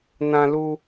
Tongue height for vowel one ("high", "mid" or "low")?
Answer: low